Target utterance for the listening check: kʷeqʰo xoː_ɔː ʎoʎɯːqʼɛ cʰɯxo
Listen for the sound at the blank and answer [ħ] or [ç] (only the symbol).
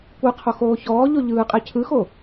ç